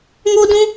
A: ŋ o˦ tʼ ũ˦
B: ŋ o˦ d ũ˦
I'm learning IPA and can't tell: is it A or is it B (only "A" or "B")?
B